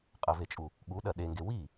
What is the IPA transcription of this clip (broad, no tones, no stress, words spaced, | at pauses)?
qʼəvet͡ʃʼu | ɠuɗɐ ɗeŋɡe wi